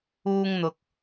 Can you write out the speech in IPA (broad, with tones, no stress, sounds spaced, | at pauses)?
uː˧ ŋ n̪ ʊ˨ k̚